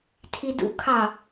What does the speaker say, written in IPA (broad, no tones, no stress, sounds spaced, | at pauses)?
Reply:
tʰ i d ṵ kʰ ɑ